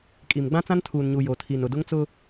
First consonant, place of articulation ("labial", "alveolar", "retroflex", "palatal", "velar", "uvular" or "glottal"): velar